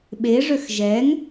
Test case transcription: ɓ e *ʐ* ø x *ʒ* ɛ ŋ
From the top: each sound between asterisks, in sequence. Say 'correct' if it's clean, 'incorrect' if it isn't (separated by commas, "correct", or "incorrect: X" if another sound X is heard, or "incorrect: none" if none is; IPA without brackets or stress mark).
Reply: correct, correct